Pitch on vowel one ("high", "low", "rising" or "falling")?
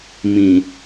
low